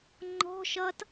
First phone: ŋ͡ǃ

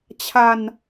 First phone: t͡ɕʰ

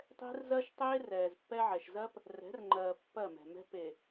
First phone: tˤ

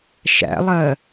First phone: ʃ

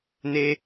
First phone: n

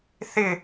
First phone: θ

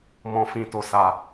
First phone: m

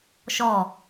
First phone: ʃ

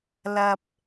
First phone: l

